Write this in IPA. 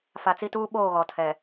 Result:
f a˨ t͡s i˦ t uː˦ ɓ oː˦˨ ɣ ɔ˨ tʰ ɛ˨

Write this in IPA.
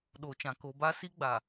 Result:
ɗ oː˨ t͡ʃ ã˨ k o˨ b a˦ s i˦ ɡ͡b a˨

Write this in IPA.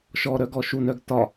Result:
ʃ ɔ ɾ œ ɡ ɔ ʃ u n œ ɡ t ɒ

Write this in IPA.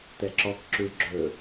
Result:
t̪ ɛ ǁ ɔ k ǁ ʉ ɭ ɡ͡ǁ ɵ

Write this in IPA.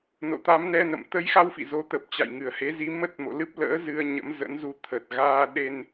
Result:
n o̰˧˨ t̪ a˨˦ m n ɛ˧ n ə̰˧˨ m t̪ ə˨˦ j x a˧ w f ḭ˧˨ z o˨˦ t̪ ə˨˩ p̚ t͡ɕ a̰˧˨ j ŋ ɨ˨˩ ə̯ h e˨˦ z i˨˦ m ə˦˥ t̚ m o̰˧˨ l ɨ˦˥ p̚ l ə̰ː˧˥ z ɨ˧ ə̯ ɲ ə̰˧˥ m z ə̰˧˥ n z u˧ t̪ʰ ə˨˩ t̚ ɣ aː˧ ɗ e˧ n

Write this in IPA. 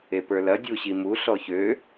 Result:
e p ə˞ l ɐ dʲ u ɕ i m u ɬ ɔ ç ø

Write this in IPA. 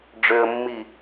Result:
ɖ͡ʐ ø ə̯ mː i

